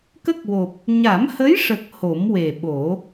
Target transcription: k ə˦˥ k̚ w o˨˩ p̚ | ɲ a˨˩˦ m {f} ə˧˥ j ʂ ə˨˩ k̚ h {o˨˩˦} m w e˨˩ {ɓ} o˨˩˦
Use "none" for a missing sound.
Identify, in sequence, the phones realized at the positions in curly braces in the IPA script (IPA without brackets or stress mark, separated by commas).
h, o˨˩˦, ɓ